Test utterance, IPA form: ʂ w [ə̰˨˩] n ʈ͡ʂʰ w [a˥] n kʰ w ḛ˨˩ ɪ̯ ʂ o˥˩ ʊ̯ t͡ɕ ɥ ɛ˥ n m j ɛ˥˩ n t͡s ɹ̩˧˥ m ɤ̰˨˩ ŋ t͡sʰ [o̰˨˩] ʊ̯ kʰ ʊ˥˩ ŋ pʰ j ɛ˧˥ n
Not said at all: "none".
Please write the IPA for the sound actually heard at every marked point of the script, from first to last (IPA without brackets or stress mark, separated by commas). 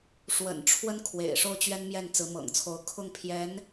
ə̰˨˩, ə˥, o˧˥